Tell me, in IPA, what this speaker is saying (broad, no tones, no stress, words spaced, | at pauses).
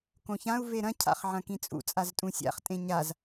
kõçãu̯ veɾɐ̃ cʰa̰χʕɐ̃kĩt͡sʼṵ t͡sʼaztʼũsʲa̰χ tʼẽɲaz